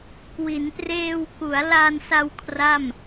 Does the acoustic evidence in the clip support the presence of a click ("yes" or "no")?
no